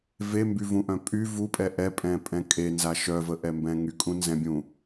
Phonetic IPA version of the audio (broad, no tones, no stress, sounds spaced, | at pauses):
v e m b y v ũ ʔ œ̃ pʼ y v u pʼ ɛ ʔ ɛ pʼ ɛ̃ pʼ ɛ̃ kʼ e n z a ʃ œ v ə ʔ ɛ m b ɛ̃ ŋ y kʼ ũ n z ɛ̃ bʲ ũ